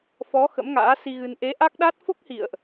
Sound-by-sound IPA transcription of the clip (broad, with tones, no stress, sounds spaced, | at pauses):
f ɔ˨˦ x ə̰˧˥ m ŋ a̰ː˧˥ s i˧ ɣ ɨ˧ n ʔ e˨˦ ʔ a˦˥ k̚ ɗ a˦˥ t̚ f o˦˥ k̚ h ḭ˧˨ ə̯ ʔ